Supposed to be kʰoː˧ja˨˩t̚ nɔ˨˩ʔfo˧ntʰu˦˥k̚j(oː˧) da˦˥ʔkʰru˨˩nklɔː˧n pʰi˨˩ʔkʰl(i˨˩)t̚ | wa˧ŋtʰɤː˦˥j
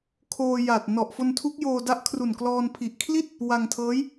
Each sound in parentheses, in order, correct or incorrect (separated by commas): correct, incorrect